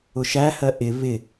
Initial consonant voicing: voiceless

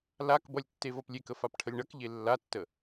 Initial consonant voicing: voiced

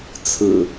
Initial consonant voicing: voiceless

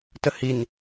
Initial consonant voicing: voiceless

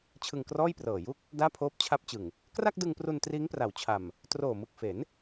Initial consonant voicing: voiceless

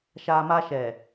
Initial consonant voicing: voiceless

